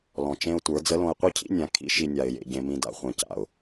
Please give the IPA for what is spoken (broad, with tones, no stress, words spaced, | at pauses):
lɔ̃˨t͡ʃẽ˦ʊ̯tʷə˞˨˦ d͡zə˨˦lõ˨ɪ̯qʷi˦cʰḭ˦ nʲã˨ kʰḭ˦ʃi˨ nʲa˨ɪ̯jḛ˨ ɟẽ˨mĩ˨da̰˦˨ χʷẽ˨ca̰˨ʊ̯